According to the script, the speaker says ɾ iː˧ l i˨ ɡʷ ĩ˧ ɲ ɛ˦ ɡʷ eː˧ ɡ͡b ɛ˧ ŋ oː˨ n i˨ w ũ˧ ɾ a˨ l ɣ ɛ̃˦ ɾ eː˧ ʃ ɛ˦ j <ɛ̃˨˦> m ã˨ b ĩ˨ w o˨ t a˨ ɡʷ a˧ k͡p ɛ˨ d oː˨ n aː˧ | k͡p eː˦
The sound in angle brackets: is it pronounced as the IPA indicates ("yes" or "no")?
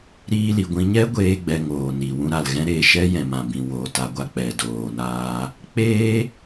no